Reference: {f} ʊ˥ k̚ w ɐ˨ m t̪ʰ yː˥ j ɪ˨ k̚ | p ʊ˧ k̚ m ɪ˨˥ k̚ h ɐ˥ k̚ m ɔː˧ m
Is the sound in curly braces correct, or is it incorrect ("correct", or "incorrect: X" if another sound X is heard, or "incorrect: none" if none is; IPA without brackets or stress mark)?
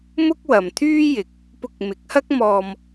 incorrect: m